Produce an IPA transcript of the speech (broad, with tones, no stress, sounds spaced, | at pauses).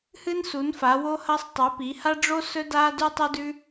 h ɨ˥ n s u˨˥ n f a˨˥ w o˥ h ɐ˥ sˤ tˤ ʉ˨˥ p i˨˥ h a˥ ɖ͡ʐ o˥ s ɵ˥ d a˥ d ʉ˥ tˤ ʉ˥ d ʉ˥